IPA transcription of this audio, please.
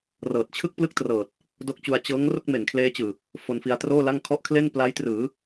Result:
rɤː˨˩t̚t͡ɕʰɯ˥˩k̚plɯ˥˩k̚trɤː˨˩t̚ | do˦˥k̚t͡ɕu˧a̯ t͡ɕɤː˦˥ŋ ro˥˩k̚me˩˦n kʰleː˦˥t͡ɕɯː˨˩ | fo˧nfi˧a̯troː˥˩la˥˩ŋ kʰɔ˦˥ʔkʰle˥˩n pla˦˥jtrɯː˩˦

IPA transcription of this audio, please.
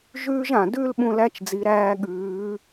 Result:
ʒʉː˥ʒã˩dʉ˥l ɓũ˧læ˧˥t͡ʃd͡zi˩˧ɾæː˧ ɠʉː˩˧

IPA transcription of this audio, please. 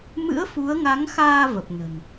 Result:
mɨ̰˧˥ə̯fu˨˦ə̯ŋa˨˦ŋxaː˧ və˨˩p̚nə̤˨˩n

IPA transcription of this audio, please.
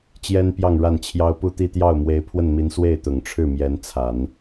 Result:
t͡ɕjɛ˥npjɑ˥˧ŋ ɻa˥˩nt͡ɕʰjɑ˥ʊ̯ pu˥˧t̪i˥˧ t̪jɑ˥˩ʊ̯mwe˧˥ɪ̯pʰwə˥˩nmi˧˥n swe˥˩ɪ̯t̪ʊ˨˩ŋʈ͡ʂʰɻ̩˥˩ mjɛ˧˥nt͡sʰa˨˩˦n

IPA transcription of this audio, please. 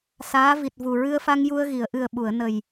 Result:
saː˧˥vi˨˩t̚ vu˨˩ɹɨ˧ə̯fa˧ŋ ju˧ə̯ɣi˨˩˨ə̯ʔɨ˨˩ə̯ ɓu˨˩˨ə̯ nə˨˩j

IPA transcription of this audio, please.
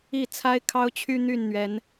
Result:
i˥˨t͡sʰa˦ɪ̯kʰɑ˦ʊ̯t͡ɕʰy˦ n̪y˥˨nn̪ɥɛ˨˦n

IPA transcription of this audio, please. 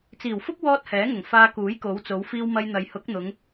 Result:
t͡siː˨˩wfʊ˥k̚ wɔː˥t̚hɛː˨˥ŋʊ˨˩ŋ faː˧kuː˨˥jko˨˧wt͡so˨˧w fiː˧wmɐ˧jn̪ɐ˨j hʊ˨˥k̚n̪ʊ˨˧ŋ

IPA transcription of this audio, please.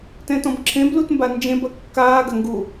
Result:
tɛ̃tɔ̃bǁʰẽblut mband͡ʒẽbɐ kːaːɡɐ ŋɡu

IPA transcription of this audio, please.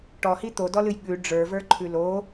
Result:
ʈɔhi t̪odɔlɨj ɠʉ ɖ͡ʐə˞və˞ǃʰʉ lo

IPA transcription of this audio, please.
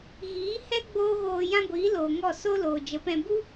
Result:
ɣiː˨˦hɛ˦ ɡ͡boː˦ɣoː˧ jã˦ɡʷiː˨˦ loː˨ ŋɔ˦˨ so˦ loː˨d͡ʒə˨˦pɛ̃˧ bu˦

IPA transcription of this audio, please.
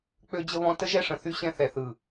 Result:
k͡pø˦d͡ʑə˦βɔ̃˦ tə˦ʒɛ˦ʂə̃˨θy˦ ɕɛ̃˦θɛ˨θɯ˨

